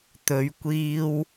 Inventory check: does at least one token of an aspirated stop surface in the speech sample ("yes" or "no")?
no